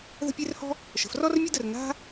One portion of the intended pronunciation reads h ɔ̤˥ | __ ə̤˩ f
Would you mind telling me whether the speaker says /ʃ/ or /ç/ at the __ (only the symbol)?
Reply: ʃ